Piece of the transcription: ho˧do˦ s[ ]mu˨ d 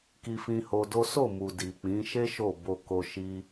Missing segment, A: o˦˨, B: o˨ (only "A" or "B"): A